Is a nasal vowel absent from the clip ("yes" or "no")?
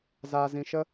no